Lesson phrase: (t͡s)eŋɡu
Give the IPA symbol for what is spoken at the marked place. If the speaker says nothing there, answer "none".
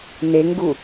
n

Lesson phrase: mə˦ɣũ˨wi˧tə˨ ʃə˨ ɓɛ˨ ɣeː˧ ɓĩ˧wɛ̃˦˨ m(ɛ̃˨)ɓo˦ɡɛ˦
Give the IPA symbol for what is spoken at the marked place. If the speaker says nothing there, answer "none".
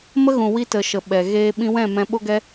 ɛ̃˧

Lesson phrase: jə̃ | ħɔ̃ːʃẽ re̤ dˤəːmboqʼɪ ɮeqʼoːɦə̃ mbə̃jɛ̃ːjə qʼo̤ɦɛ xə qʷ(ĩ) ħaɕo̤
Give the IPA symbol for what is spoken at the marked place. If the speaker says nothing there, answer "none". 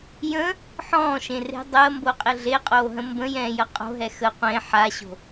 ẽ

